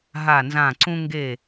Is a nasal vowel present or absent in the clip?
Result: present